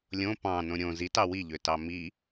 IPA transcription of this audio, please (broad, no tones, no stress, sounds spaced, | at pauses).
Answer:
lʲ õ p ɑ̃ n õ ɾʲ õ z i t ɑ w i ʎ ø t ɑ m i